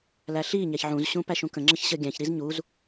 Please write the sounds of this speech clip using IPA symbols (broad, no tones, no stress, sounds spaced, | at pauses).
l æ ɬ i ɲ æ ç ʕ ũ z ɕ ũ p æ ʃ ũ k ə̃ ŋ͡ǁ ə ç ɕ ə ɡʲ æ̃ ç ɾ i z ɲ u z